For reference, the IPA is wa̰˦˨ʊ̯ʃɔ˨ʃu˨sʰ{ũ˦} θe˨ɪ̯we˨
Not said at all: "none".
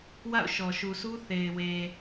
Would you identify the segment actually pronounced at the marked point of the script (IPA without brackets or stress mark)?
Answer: u˦